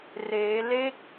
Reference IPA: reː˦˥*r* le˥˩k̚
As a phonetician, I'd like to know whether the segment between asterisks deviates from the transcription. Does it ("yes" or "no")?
yes